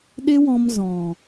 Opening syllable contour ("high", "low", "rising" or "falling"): high